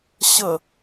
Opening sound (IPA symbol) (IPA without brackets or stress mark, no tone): ɕ